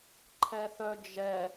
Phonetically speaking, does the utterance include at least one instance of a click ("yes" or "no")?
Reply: yes